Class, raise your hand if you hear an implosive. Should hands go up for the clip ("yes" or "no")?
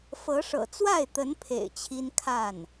no